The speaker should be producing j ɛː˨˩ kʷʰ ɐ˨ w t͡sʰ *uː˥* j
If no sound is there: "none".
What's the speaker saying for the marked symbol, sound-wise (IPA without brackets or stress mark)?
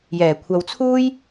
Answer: uː˥